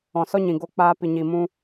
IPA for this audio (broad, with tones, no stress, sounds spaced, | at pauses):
ɔ̃˨ s ɔ˦ ɲ ĩ˨ ɡ o˧ k͡p aː˧ p i˨ ɲ i˨ m ũ˧